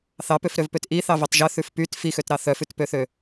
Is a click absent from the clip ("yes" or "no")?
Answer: yes